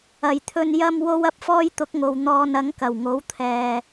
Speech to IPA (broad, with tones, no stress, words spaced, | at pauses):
ɐ˨˩jt̪ʰɵ˧n jɐ˧mwo˧w ɐ˥p̚fɔː˥jt̪ʊ˨˥k̚ŋo˨w n̪ɔː˧n ɐ˨˥ŋkɐ˨˩wŋo˨˥w t̪ʰɛː˧